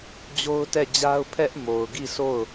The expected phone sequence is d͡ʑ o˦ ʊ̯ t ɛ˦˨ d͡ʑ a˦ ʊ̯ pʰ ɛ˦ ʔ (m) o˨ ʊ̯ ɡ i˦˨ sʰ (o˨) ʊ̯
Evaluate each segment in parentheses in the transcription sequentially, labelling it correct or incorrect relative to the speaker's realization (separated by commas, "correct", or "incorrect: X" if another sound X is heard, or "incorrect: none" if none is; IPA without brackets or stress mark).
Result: correct, incorrect: o˦˨